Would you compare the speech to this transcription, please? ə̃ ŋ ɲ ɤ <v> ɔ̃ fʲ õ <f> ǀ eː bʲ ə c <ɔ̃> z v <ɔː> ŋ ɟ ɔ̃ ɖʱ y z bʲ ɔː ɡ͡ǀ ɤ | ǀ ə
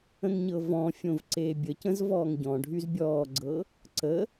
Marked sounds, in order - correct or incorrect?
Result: correct, incorrect: v, incorrect: ə̃, correct

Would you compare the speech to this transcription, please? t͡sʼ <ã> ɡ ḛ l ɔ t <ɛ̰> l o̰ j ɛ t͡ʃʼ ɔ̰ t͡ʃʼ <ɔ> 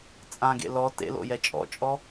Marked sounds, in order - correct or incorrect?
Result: correct, incorrect: ḛ, correct

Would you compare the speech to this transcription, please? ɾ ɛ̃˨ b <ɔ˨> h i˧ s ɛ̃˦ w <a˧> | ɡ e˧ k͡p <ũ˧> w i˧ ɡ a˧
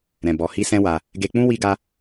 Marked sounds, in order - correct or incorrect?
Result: correct, correct, incorrect: ũ˦

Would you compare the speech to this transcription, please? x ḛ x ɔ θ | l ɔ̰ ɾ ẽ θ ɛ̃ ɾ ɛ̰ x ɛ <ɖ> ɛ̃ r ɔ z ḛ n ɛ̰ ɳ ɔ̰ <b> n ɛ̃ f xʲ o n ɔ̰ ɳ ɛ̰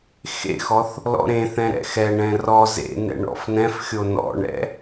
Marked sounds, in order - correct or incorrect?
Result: incorrect: ɳ, incorrect: f

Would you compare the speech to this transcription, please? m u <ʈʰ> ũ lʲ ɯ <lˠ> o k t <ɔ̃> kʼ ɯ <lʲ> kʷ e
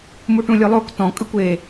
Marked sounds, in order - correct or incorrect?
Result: incorrect: ʈ, correct, correct, incorrect: none

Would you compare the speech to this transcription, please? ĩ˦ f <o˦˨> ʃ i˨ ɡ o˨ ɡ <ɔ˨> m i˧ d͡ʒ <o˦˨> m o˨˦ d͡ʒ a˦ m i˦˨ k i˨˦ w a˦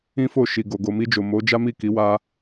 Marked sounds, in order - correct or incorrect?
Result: correct, incorrect: o˨, incorrect: o˨

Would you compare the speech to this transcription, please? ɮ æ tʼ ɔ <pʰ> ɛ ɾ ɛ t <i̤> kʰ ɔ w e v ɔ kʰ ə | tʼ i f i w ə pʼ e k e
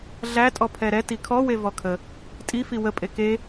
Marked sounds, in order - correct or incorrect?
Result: correct, incorrect: i

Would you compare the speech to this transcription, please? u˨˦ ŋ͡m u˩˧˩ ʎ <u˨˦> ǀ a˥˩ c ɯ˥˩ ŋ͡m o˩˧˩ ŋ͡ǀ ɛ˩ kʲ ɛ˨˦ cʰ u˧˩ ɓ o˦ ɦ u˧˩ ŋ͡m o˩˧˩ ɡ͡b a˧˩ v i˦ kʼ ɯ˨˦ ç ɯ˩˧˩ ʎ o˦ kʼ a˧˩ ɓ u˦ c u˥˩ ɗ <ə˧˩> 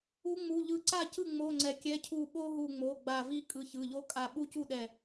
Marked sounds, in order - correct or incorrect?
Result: incorrect: ɯ˨˦, incorrect: ɛ˧˩

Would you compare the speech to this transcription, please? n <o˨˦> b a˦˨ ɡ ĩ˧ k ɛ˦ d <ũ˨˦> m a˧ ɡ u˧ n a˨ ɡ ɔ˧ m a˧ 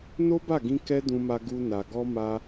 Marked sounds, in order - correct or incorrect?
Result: incorrect: o˦, incorrect: ũ˧

